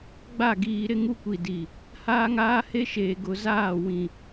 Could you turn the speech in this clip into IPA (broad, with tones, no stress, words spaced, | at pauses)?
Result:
ɡ͡ba˦˨ɡiː˨ɾɪ˦ ŋu˦kʷi˨di˨ | haː˦ŋaː˦he˦ʃeː˨ ɡʊ˨zaː˦˨wĩ˨